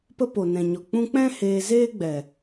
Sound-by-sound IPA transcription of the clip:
p ə˦ p o˨ n ɛ̃˨ ɲ ɔ˨ k͡p ũ˧ k͡p ɛ̃˦ h eː˧ z eː˦ ɡ͡b ɛ˨

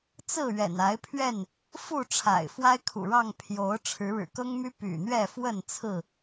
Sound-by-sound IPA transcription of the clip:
t͡s ɹ̩˥˨ ɥ ɛ̰˨˩ n a˨˦ ɪ̯ pʰ ɥ ɛ˥˨ n | f u˥˨ ʈ͡ʂʰ a̰˨˩ ɪ̯ f w a˦ ɪ̯ kʰ ṵ˨˩ ɻ ɑ˥˨ ŋ pʰ j o˨˦ ʊ̯ ʈ͡ʂʰ ɻ̩˨˦ ɻ ɻ̩˨˩ k ɤ˦ ŋ m y˦ p y̰˨˩ n̪ ɥ ɛ˥˨ f w ə˥˨ n t͡sʰ ɹ̩˥˨

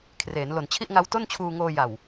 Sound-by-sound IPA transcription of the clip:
kʰ r eː˩˦ n l o˨˩ n t͡ɕʰ i˥˩ ʔ ŋ a˦˥ w t o˥˩ n t͡ɕʰ uː˧ ŋ oː˧ j a˨˩ w

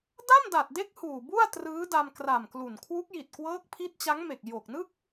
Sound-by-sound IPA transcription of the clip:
d a˥˩ m d a˨˩ t̚ d e˦˥ k̚ h uː˨˩ b u˥˩ a̯ t r ɯː˦˥ d a˧ m k r a˨˩ m k l u˨˩ n kʰ w u˦˥ k̚ j i˨˩ t̚ k w ɤː˦˥ k̚ pʰ i˦˥ t̚ t͡ɕ a˦˥ ŋ m e˨˩ k̚ j o˨˩ k̚ n ɯ˥˩ k̚

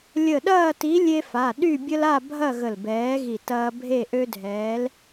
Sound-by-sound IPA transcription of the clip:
lʲ ə˧˩ ɗ ɐː˥˨ t i˨˥ lʲ e˦ f a˩˧˩ ɗ y˥˨ bʲ ə˦ l a˥˨ bʱ ɐ˥˨ ɣ ə˧˩ l b ɛː˨˥ ɣ i˧˩ t ɐː˦ bʱ e˥˨ ʔ ø˦ dʱ ɛː˨˥ l

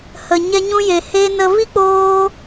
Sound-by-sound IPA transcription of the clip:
h ə˨ ɲ ɛ˧ ɲ ũ˧ j e˨ h e˧ n ə˧ v i˦ k͡p oː˧

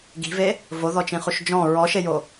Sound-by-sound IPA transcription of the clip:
ɡ i̤ v e | v o ð ɔ t͡ʃ ĩ χ u ʃ d͡ʒ ɔ̃ ɹ ɔ ʃ e j o

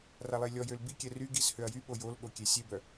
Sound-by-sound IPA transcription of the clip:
r a lˠ e lʲ ɔ j ø l b i kʲ ɛ r y ɡ i s h ø ɐ̯ j y ɓ o j o l ɠ o kʲ e sʲ e b œ

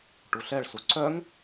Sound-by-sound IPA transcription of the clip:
ʈ u ɬ ɛ ɭ s u ǀ œ ŋ

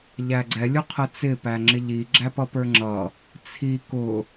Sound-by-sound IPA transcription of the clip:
ʎ æ ɡ͡ǀ ɛ lʲ ʊ qʰ ə t͡s ɪ p æ ŋ͡ǁ ɪ ʎ i ɡ͡ǁ æ p ʌ p ə˞ ŋ͡ǁ ʌ | t͡sʰ i k ʊ

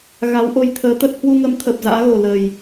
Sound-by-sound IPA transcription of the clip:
ɣ a˨˦ w ʔ o˧ j t̪ʰ əː˨˦ t̪ ə˦˥ t̚ h w u˧ ŋ ə˨˦ m t̪ʰ ə˨˩ p̚ z a̰ː˧˥ ɣ o˨˩ l ə˨˩ j

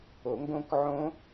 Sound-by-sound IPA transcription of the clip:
o˨˩˦ ŋ ɡ õ˦˥ k ʕ õ˦˥

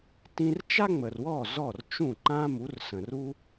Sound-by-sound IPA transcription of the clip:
t ĩ˧ r t͡ʃ a˥ ŋ͡m ə˩ r w ɔ˥˩ z ɔ˥˩ r t͡ʃ ũ˥˩ ǃ ã˥ m u˩˥ r s ə̃˩ r u˥

